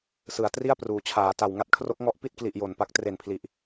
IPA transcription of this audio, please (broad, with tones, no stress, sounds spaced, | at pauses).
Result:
s ɯ˩˦ a̯ t r i˥˩ a̯ p r uː˩˦ t͡ɕʰ aː˩˦ t a˨˩ w ŋ a˦˥ t̚ kʰ r o˦˥ k̚ ŋ ɔ˦˥ ʔ p i˥˩ t̚ k l i˨˩ ʔ j o˨˩ n p a˦˥ k̚ t r e˨˩ n pʰ l i˨˩ ʔ